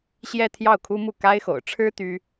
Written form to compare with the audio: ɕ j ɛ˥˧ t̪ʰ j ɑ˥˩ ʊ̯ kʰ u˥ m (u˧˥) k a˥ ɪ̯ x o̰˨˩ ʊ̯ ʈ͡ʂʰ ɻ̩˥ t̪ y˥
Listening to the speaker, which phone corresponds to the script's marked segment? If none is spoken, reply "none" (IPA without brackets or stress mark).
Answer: u˥˩